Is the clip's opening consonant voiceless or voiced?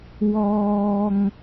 voiced